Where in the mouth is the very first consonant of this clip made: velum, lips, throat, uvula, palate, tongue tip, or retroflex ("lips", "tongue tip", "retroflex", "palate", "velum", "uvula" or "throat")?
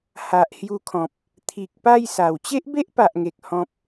throat